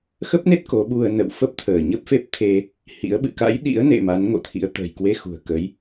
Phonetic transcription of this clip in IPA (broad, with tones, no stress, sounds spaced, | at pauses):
x ə˦˥ p̚ n e˦˥ t̚ k o˨˦ ɓ u˧ ə̯ n ə̰˧˨ w f ə˦˥ p̚ t̪ʰ əː˧˩ ɲ ə˦˥ p̚ f e˦˥ p̚ t̪ʰ e˧ | h ḭ˧˥ ə̯ ɓ ɨ̰˧˨ k a̰˧˥ j ɗ ḭ˧˥ ə̯ n ḛ˧˨ m a˨˦ n ŋ o̰˧˨ t̪ʰ ḭ˧˥ ə̯ t̪ ə̤˨˩ j k w e˧ x ṳ˨˩ ə̯ k ə˨˦ j